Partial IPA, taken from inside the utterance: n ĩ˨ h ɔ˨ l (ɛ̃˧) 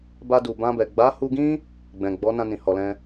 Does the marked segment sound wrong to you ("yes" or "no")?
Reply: no